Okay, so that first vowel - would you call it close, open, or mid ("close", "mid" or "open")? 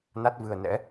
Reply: open